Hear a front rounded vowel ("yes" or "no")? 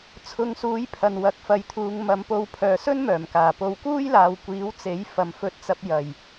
yes